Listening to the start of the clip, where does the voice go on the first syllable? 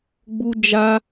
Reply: high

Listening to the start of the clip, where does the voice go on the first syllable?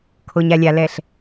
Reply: low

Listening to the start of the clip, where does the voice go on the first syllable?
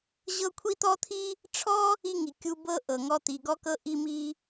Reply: high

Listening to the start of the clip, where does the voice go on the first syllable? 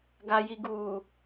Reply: low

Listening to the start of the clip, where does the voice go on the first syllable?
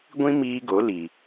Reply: high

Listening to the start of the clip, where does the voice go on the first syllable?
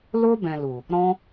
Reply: high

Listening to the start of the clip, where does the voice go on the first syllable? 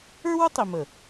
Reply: high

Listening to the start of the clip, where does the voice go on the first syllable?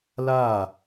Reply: falling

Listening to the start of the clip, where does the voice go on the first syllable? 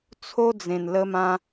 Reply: high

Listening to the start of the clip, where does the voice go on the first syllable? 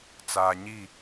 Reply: low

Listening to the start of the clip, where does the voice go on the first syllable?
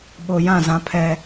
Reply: low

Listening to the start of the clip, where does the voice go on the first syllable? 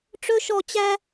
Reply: high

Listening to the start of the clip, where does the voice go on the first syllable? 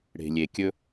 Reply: low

